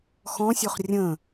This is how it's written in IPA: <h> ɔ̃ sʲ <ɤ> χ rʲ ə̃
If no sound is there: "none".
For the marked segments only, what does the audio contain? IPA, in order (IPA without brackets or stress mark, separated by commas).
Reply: x, o